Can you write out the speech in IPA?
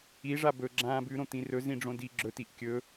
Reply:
i ʐ a b ɵ ɡ͡ǁ ãː b ʉ ɾ õ t̪ ĩ r ɵ z ĩ ɖ͡ʐ õ d i ɡ͡ǁ ɵ t i ʔ kʲ ɵ

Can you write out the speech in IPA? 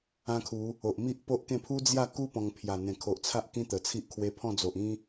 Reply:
ã˦ kʰ u˨˦ | o˨ ʔ m i˦ ʔ p o˦ ʔ k ẽ˥˧ pʰ u˦ d͡z j a˥˧ k u˦ p ɔ̃˧ ŋ pʰ j a˨˩ n̪ ẽ˨˩ kʰ o˨ ʔ t͡sʰ a˦ ʔ k ĩ˦ t̪ ə˨˩ t͡sʰ i˦ ʔ kʰ w e˧ pʰ ɔ̃˥˧ d͡z o˨ ʔ ĩ˦

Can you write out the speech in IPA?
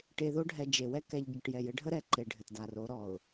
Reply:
ʈ e˨ ð o˦ ɖʱ ɛ˨ d͡ʒ e˨ w ɛ˦ k ɛ˨ ʎ ɟ ɘ˨ ʈ j ɛ˨ j ɘ˦ ɖʱ ə˦ ɾ ɛ˨ ǃ e˨ ɖʱ ɘ˨ t d a˨ r o˨˦ ɾ ɔ˨ ʊ̯

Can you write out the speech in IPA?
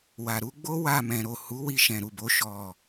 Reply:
w a˨ ɾ u˧ ɡ͡b o˦ w a˦˨ m ɛ̃˨ ɾ o˨ h u˨˦ w i˧ ʃ ɛ̃˨ ɾ u˨ b o˨˦ ʃ ɔ˦˨

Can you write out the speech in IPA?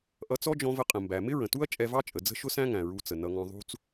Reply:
ʔ ʌ˧ t͡s ɔ˥ d͡ʒ ɔ̃˧ v ə˧ qʼ ə̃˩ m b æ˩ m ɪ˥ ɹ ə̃˩ t u˥ ɐ̯ t͡ʃʼ ɛ˧ v ɑ˥ t͡ʃʼ ə˩ d͡z ə̤˥ ʃ ʊ˥ s æ̃˥ ŋ æ̃˩ ɹ u˧ t͡s ə˩ n ʌ˧ ŋ ɔ̃˧ ðˤ ṳ˥ t͡s

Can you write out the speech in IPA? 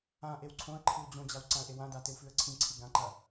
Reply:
ã ʔ e w ǀʰ õ ə̯ ǃʰ ɨ w d͡ʑ õ d͡ʑ a w ǀ ã ə̯ ʔ e w ã d a t e w f ʉ ə̯ ǀʰ ĩ ǀʰ i ɡ ã ǃ ɐ

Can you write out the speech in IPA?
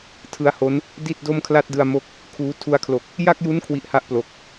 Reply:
tʰ ɯ˦˥ a̯ h o˦˥ n | d i˥˩ t̚ d o˥˩ m kʰ l a˥˩ t̚ d ɯ˧ a̯ m o˦˥ k̚ | kʰ uː˦˥ tʰ u˧ a̯ kʰ l o˨˩ k̚ | j a˥˩ k̚ j u˦˥ n kʰ w i˦˥ ʔ h a˥˩ ʔ p l o˨˩ k̚

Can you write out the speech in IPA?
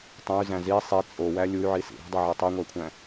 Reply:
tˤ õ y̯ z æ̃ z i sˤ i t͡sʼ o w æ lʲ u y̯ ʕ i s ḭ ɾ ṳ dˤ e ʕ i tˤ e ŋʷ æ kʷʰ æ̃

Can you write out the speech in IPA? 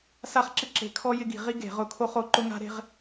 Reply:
s a˦ χ ǁ ɪ˦ ǁ e̤˧˩˧ kʰ ɔ˦ j ɪ˦ ɡ i̤˧˩˧ ʁ i˦ ɡ e̤˧˩˧ ʁ ʊ˧˩˧ kʰ o˦ χ o˧˩˧ ǃ ʊ˦ ŋ a̤˦ ɾ e̤˦ ʁ

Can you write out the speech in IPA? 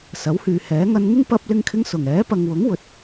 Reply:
s ɐ˨˥ w h yː˨ h ɛː˨˥ ŋ ɐ˧ n ŋ ɪ˥ ŋ p ɐ˥ p̚ l ɪ˥ ŋ kʰ ɪ˥ ŋ s ʊ˨˩ ŋ ɛː˨˥ p ɐ˨ ŋ w ʊ˨˥ ŋ w ɵ˨ t̚

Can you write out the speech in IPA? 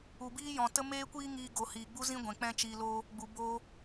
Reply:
u˨ b iː˦ j ɔ̃˨ t ə˦ m eː˦ kʷ iː˦ ŋ iː˧ ɡ o˨ h iː˨ ɡ͡b u˦ z ĩ˦ ɡʷ ɛ̃˨ k͡p ɛ̃˦ t͡ʃ iː˧ l oː˦ | ɡ͡b u˨ b oː˧

